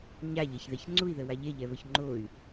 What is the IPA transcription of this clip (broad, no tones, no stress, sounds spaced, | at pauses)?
ɲ a ʎ ɛ ç ð ɛ ç ŋ͡ǀ u i̯ ð ə w a ʎ e ʎ ɛ β ə ç ŋ͡ǃ o y̯